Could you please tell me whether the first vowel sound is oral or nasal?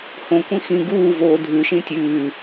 nasal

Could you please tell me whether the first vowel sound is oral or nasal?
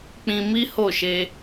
nasal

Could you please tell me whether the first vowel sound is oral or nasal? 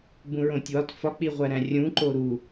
nasal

